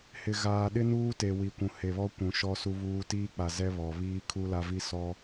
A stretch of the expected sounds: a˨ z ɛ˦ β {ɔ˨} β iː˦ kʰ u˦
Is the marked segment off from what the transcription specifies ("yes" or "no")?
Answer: no